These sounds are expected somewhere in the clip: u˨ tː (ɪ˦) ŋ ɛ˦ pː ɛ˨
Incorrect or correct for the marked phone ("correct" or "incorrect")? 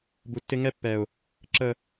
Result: correct